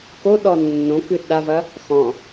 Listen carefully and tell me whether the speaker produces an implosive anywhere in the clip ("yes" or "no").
yes